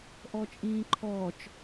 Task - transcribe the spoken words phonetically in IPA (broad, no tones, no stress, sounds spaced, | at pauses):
ʔ ɔ t͡ʃʼ ĩː ǃʰ ɔː t͡ʃ